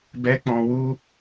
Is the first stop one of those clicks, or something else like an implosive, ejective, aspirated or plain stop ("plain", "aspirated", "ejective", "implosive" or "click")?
plain